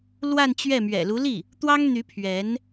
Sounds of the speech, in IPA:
l w a˥˧ n t͡ɕ ɥ ɛ˥˩ m ɥ ɛ̰˨˩ l u˧˥ l i˥˩ | t̪ w ɑ˥ ŋ n̪ y˧˥ pʰ ɥ ɛ˧˥ n

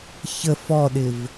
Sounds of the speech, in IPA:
ç ə f ɔ ɗ ɪ v

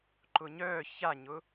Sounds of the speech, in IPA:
ǃ ʊ ɲ œː ç a ɲ ʊ

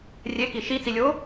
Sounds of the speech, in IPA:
rʲ e k i ʃ i t͡s i lʲ oː

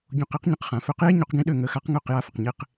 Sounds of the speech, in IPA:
ɟ õ˧ q i˥ q ɲ ə̃˧ q χ ã˩ f ø˧ q j e˥ ɲ o˩˥ q ɡ ĩ˧ ɗ ø˥˩ ŋ ə˩˥ x a˩˥ q ŋ ø˥˩ q j a˧ f ə˩ q ɲ e˧ q

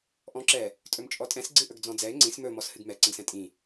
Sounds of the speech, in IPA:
ʔ ɔ̃ ǁ ɛ | tʼ ɵ m t͡ʃʼ ɔ tʼ ɛ̃ s ɡ͡ǀ ɨ ʔ ɵ ɡ d͡z ɔ̃ d͡z ɛ ɪ̯ ŋ͡ǀ ĩ s m ɵ m ɔ s h ɨ ɡ m ɛ ǀ ə̃ ɡ s ɛ̃ tʼ ĩ

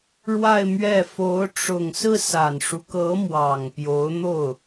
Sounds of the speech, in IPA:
ɻ w a˥˧ ɪ̯ m ɥ ɛ˥˩ f o˧˥ ʊ̯ ʈ͡ʂ ʊ˨˩ ŋ s ɹ̩˥˩ s a˨˩ n ʂ u˦ k ɤ˧˥ m w ɑ˨˩ ŋ p j o˧˥ ʊ̯ n̪ o˥˩ ʊ̯

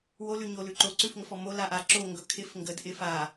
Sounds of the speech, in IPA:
w o l ʉ ɲ o l ʉ ǃ o ǀ ʉ f ŋ ə f ɔ m o l a ʔ a ǁ o ŋ ɡ ɵ kʰ ɪ f ŋ ɡ ə d ʔ ɪ f a

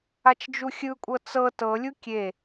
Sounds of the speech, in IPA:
a t͡ʃ d͡ʒ u xʲ ɯ kʷʼ ɤ t͡s ɤ t ɤ lʲ u kʲ e

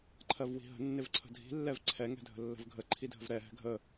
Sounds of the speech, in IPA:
ǃʰ ɜ v w i̤ ɦ ə̤ nː ɪ v ǀʰ ə̤ dʱ i̤ lː ɛ v ǀʰ ɛ ŋ ɛ̤ dʱ ə̤ lː ə̤ v ɡʱ ə ǃʰ i dʱ ə̤ v ɾ ɛ ɦ ɛ̤ ɡʱ ə

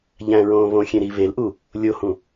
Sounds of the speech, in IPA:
ʎ æ̃ ɹ õː β õ xʲ ẽ ɾ i β e l ʔ u | lʲ o h ũ

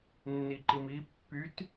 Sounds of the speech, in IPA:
nː i ǃ i m i pː y t

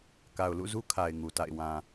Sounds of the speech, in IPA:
k a˨ ʊ̯ l ṵ˦˨ z u˦ kʰ a˨ ɪ̯ ŋ u˨ t a̰˦˨ ɪ̯ w ã˨

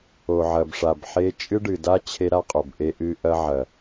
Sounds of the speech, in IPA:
o˨ ʕ ɐ˨ b ʂ a˨ b ħ e˦ t͡ʃʼ ɨ˦ ɖ ɨ˨ d a˦ t͡ɕʰ e˦ ɾ a˦ qʼ o˨ b ʔ e˦ ʔ ɨ˦ ʔ ɐ˦ ʕ ɐ˨

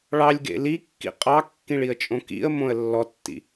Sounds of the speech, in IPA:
ɭ ɑ lʲ ɡ ḛ l i kː ḭ qʼ ɑ kː ĩ ɭ i ə̯ t͡ʃʼ õ k ḭ ə̯ m õ ə̯ lː ɔ tː ḭ

